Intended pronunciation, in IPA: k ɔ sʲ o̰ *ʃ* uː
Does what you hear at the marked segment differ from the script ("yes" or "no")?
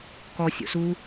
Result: yes